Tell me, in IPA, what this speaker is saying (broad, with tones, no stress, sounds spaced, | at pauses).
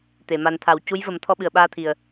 t̪ e˨˩˨ m a˨˩ n t̪ʰ a˨˩˨ w c u˧˥ j v ə˨˩˦ m t̪ʰ ɔ˧ ɓ ɨ˨˩ ə̯ ɓ aː˧ t̪ʰ i˨˩ ə̯